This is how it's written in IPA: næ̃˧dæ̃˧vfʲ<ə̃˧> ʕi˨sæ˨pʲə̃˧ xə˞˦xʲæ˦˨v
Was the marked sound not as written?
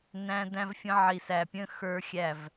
no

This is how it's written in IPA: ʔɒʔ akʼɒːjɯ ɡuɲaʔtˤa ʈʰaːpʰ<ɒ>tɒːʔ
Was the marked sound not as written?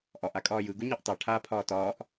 yes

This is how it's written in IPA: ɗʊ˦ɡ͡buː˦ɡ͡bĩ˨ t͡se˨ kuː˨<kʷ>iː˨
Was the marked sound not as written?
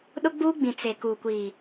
no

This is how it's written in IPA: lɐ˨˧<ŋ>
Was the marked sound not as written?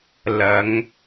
no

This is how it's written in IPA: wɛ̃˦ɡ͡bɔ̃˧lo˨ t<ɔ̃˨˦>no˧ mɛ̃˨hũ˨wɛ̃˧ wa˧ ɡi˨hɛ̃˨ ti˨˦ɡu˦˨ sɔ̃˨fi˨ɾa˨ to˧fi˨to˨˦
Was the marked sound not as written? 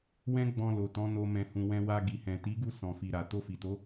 no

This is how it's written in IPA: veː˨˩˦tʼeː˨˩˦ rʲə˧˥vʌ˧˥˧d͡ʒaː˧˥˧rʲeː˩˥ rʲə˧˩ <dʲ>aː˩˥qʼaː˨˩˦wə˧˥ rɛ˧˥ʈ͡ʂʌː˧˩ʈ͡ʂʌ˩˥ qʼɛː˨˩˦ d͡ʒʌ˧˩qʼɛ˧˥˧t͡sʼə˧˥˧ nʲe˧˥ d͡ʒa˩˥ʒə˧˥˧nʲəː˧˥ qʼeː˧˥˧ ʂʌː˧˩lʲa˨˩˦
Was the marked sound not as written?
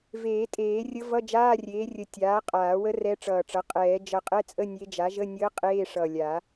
yes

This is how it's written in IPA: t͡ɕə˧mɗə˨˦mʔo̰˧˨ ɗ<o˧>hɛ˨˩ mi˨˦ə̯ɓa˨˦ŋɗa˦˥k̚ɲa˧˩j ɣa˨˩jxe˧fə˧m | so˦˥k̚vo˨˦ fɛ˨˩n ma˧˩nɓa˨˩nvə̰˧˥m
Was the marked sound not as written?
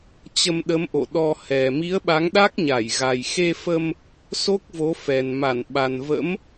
yes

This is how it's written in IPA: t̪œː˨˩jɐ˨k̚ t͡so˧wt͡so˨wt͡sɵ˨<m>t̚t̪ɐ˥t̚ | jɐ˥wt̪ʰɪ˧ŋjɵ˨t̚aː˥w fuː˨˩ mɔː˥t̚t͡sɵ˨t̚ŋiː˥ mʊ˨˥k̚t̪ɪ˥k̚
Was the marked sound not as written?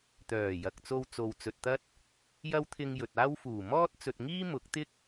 yes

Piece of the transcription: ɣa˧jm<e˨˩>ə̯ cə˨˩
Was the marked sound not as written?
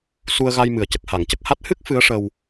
yes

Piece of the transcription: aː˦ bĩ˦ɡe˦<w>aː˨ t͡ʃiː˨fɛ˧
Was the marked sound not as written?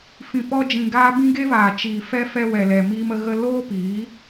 yes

